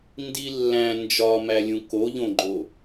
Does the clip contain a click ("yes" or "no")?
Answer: yes